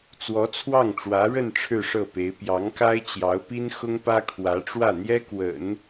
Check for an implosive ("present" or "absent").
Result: absent